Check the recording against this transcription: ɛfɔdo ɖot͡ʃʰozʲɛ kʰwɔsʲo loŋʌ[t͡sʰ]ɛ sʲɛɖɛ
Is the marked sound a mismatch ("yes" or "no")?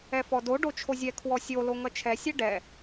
yes